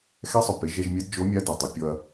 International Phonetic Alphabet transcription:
x ɛ˧˥ sˤ ʊ˩ p e˩˧ ʒ ɛ˧ ʒ mʲ ɛ˧˥ d d͡ʒ o˧˥ mʲ a˧˥ d ɪ˩ ɐ̯ tˤ e˩˧ pʲ ɔ˧ ɐ̯

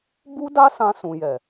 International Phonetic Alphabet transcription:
b u˦ d a˦ s ã˧ s ũ˨ j ɛ˨

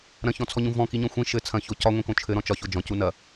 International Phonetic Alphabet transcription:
ɾ ɐ̃ ç ɔ̃ t͡sʰ ɔ ɲ ũ v ɔ̃ k i ɲ ɔ̃ xʷ ĩ ʃ ɘ t͡sʰ ɐ̃ ç o c ɒ ŋʷ ĩ k õ t͡ʃʰ ɘ ɾ ɔ̃ t͡ʃ ɒ ç o d͡ʒ ɔ̃ c u n ɐ

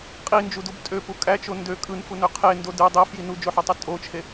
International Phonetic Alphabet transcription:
qʼ i n d͡ʒ u d u b tʼ ø p u kʼ æ t͡ʃ o n d ø kʼ ɯ n f u n ø qʰ e n d o d ɯ dˤ e f j i n u d͡ʒ o ħ ø tˤ u tʼ o t͡ʃʰ e

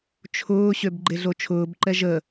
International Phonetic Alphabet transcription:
t͡ʃʰ ʊː ɕ ø b ɡ͡ǃ e ɮ o t͡ʃʰ ʊː b ǃ ɛ ʒ ə

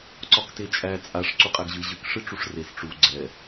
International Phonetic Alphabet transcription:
ǀ ɒ k t e t͡ʃʼ æ t͡sʼ a ʂ ǀ u qʼ æ ɡ ʑ ɨ ʑ ɨ k ʂ ɨ ʈ͡ʂ u ʂ r e s ʈ͡ʂ u ɡ͡ǀ ɛ

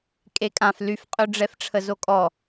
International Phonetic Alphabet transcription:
kʼ e kʼ ã f l y f qʼ ø ɖ͡ʐ ɛ f ʈ͡ʂʰ ə z o kʼ ɔ

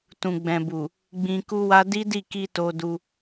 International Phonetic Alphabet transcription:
t ũ˨ ɡ͡b ɛ̃˨ b u˨ | ɡ͡b ĩ˧ k u˦ w a˦ d i˦ d i˦˨ k i˧ t o˧ d u˧

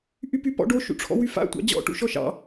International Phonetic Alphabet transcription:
ʔ y p y p ɔ̰ ɖ o ʃ ṵ ʈ͡ʂʰ ɔ̰ w y f a̰ tʷ ɑ̰ d͡ʑ ɔ̰ ʈ ṵ ʃ ɔ ʃ ɑ̰

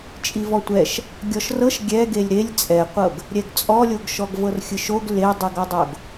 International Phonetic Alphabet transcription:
t͡ʃʼ i v ɔ tʷ ɛ ʃ | ɡʲ ɔ ʃ r ɤ ʃ ɡʲ ɛ ɡ e lʲ ɾ e lʲ t͡sʼ ɛ qʷ ɤ ɡ | ɾʲ ɛ ɡ t͡sʼ ɔ lʲ o ɡ ʃ ɔ ɡ v ɤ r xʲ ɯ ʃ o ɡ l e dˤ ɯ ɡ ɔ dˤ o ɡ

